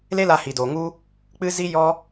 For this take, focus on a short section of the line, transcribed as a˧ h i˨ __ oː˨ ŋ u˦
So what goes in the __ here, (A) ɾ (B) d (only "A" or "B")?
B